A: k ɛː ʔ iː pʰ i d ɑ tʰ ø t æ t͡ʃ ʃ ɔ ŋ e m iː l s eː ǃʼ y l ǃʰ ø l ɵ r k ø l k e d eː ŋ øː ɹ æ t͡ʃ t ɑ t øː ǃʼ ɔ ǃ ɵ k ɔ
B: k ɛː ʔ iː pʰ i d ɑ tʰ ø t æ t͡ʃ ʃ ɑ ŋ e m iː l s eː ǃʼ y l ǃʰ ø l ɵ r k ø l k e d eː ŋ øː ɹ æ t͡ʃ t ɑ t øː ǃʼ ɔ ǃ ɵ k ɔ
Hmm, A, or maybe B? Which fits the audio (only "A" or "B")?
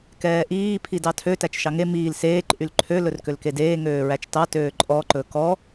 B